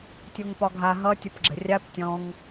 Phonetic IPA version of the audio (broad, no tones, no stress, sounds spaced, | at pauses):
tʲ o ŋ p ɒ ɡʱ a ɦ ʌ tʲ ʌ p ɡ͡ǁ ə̤ rʲ a p tʲ ɔ̃ ŋ